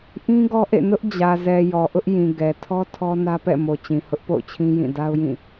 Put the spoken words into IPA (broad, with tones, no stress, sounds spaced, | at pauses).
ʔ ĩ˦ ɡ ɔ˦ ʔ ḛ˦˨ n ʊ˦ ʔ d͡ʑ ä˨ z ɛ˨ j ɔ˨ ʔ ʊ˦ ʔ j ĩ˨ ɡ ɛ˨ tʰ ɔ˦ tʰ ɔ˦ n ä˦ p ɛ̰˦˨ m o˨ t͡ɕ ĩ˨ h ʊ˦ ʔ p o̰˦˨ ʊ̯ t͡ɕʰ ĩ˦ j ĩ˦˨ d a˦ ʊ̯ j ĩ˦˨